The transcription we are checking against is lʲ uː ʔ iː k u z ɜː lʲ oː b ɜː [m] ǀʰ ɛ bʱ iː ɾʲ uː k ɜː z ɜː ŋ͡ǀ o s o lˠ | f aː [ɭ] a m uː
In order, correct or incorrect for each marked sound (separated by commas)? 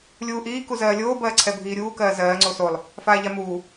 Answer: incorrect, incorrect